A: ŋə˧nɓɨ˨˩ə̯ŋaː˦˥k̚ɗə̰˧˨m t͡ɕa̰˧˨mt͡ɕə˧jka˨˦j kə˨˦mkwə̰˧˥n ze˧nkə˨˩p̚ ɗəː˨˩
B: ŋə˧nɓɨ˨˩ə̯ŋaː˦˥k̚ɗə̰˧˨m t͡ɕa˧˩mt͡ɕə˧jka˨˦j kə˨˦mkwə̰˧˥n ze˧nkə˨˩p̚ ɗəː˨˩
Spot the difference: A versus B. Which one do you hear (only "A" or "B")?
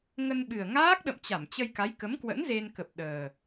B